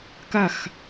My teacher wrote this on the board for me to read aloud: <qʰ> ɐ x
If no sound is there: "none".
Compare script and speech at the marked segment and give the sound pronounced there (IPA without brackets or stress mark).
k